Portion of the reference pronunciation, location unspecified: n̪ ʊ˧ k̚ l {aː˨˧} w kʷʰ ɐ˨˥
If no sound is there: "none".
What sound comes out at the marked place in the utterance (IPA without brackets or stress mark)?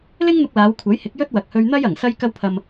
aː˨˧